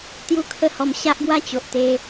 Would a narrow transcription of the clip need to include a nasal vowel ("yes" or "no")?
no